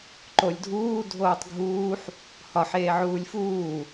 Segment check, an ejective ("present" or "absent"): absent